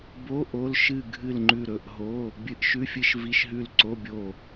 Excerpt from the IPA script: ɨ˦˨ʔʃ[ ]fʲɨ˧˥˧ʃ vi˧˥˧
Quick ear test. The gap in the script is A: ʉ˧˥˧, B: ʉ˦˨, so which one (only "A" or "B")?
A